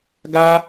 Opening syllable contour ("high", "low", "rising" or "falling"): high